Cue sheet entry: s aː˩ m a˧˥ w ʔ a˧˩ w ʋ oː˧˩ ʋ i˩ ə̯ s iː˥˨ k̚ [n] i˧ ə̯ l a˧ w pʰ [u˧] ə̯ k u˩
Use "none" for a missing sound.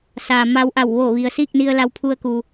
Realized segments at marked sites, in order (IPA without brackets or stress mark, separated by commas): n, u˧